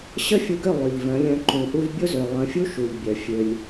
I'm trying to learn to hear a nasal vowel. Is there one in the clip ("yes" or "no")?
yes